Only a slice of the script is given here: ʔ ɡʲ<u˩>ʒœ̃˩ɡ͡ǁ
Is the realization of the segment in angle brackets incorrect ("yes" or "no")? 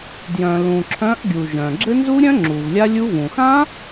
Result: no